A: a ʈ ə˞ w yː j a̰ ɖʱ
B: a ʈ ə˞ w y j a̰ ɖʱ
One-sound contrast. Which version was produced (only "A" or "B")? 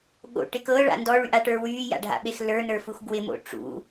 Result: A